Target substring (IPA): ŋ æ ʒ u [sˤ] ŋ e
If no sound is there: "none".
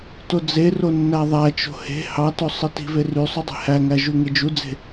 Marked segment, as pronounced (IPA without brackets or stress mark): none